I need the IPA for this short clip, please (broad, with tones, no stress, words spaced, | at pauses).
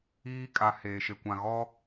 iː˦kʼa˨ heː˨ʃe˨kʷã˨ɣɔ˦